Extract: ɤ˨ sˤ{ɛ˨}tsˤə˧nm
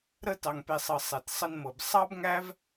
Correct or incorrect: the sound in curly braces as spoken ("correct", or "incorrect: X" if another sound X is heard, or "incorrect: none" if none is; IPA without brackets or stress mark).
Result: correct